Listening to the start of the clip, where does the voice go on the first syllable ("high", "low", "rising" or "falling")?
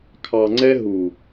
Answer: low